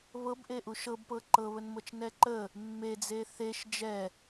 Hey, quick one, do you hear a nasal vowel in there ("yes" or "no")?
no